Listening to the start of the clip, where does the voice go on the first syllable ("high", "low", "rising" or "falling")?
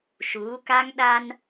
rising